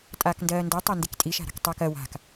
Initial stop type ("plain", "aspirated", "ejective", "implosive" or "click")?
ejective